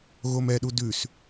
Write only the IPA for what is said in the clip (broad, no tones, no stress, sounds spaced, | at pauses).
ɣ o m ɛ ɗ u d ʉ s